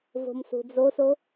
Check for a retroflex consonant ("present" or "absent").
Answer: absent